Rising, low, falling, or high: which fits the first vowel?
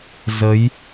rising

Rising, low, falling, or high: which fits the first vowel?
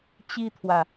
high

